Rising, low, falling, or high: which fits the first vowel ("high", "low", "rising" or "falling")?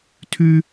high